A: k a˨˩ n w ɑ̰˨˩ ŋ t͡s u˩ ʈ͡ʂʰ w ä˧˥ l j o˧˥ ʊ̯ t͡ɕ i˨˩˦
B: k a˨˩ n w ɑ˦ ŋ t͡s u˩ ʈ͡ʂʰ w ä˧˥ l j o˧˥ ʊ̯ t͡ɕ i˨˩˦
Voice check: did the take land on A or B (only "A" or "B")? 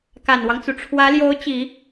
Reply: B